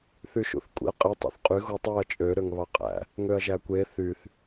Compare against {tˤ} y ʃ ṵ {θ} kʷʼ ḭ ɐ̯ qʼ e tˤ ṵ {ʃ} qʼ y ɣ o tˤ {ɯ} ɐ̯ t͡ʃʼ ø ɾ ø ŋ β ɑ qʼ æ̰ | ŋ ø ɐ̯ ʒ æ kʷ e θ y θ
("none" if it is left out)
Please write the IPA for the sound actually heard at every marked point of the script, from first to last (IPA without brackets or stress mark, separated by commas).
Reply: θ, θ, θ, ɯ